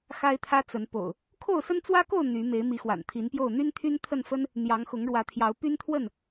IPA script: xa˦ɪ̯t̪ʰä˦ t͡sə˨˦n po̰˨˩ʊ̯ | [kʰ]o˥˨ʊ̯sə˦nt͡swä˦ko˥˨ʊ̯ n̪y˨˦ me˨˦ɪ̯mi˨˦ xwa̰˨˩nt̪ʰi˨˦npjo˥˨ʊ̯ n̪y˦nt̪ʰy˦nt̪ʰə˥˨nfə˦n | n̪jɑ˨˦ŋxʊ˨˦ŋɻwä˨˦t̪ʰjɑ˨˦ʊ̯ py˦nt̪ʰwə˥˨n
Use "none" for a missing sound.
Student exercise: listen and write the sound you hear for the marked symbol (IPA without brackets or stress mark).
kʰ